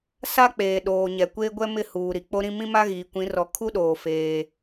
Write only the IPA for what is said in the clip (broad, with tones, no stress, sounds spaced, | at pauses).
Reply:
s a˦ k͡p eː˨ ɗ oː˨ ɲ ɛ˨ kʷ eː˦ ɡʷ ɛ˦ m ɪ˦˨ h uː˨ ɾ i˨ k͡p o˦ ɾ ĩ˦ m ĩ˦ m a˦ ɣ iː˨ kʷ ĩ˨˦ r ɔ˨ kʰ u˦ ɗ oː˨ f eː˦